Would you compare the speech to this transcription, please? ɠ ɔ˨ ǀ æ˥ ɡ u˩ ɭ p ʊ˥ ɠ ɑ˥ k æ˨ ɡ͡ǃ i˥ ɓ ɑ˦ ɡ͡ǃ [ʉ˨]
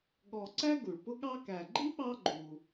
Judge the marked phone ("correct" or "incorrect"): incorrect